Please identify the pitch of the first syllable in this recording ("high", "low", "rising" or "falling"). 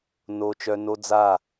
high